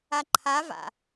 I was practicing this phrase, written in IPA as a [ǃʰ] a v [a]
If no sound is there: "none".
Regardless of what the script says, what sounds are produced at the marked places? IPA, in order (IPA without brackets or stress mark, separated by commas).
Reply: ǃʰ, a̰